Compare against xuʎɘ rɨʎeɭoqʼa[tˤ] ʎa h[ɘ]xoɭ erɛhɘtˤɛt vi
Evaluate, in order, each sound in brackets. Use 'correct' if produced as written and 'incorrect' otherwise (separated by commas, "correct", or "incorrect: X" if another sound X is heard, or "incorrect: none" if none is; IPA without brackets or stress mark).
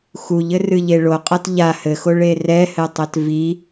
incorrect: t, correct